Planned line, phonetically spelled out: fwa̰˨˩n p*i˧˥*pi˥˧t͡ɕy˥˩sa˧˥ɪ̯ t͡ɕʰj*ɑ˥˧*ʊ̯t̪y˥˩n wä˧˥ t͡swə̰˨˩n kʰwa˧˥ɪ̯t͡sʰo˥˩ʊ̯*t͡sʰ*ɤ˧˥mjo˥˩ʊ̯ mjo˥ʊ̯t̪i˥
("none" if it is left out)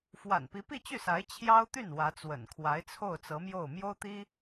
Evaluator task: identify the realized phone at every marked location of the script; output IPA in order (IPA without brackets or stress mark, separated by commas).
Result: i˧˥, ɑ˥, t͡s